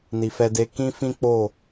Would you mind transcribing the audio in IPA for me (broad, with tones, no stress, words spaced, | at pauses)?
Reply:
ni˨fɛ˧de˧ kĩ˦fĩ˦k͡po˦˨